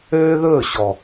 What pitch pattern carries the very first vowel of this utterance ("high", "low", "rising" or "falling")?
high